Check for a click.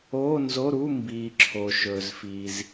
present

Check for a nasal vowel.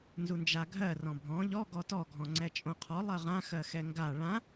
present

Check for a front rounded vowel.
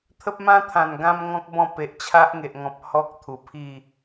absent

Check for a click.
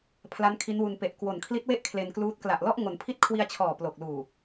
absent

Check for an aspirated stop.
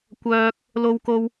absent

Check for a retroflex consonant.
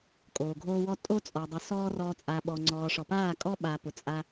present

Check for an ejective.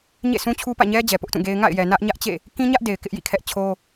absent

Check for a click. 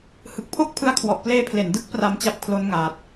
absent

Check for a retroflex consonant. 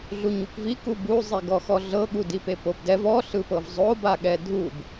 absent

